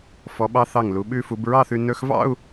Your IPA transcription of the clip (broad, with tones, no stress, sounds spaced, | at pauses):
f ɔ˩˧ ɓ ɑ˧ θ ɑ˧˩ ŋ l u˩˧ ɓ ʉ˧ f u˩˧ b ɹ ɑ˥˧ θ ʉ˧ n ɵ˧ x v ɑ̰˥˧ u̯